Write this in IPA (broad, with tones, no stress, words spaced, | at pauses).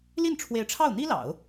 li˥˩nʈ͡ʂʰwe˧˥ɪ̯ ʈ͡ʂʰɑ˥˩ʊ̯n̪i˥lɑ̰˨˩˦ʊ̯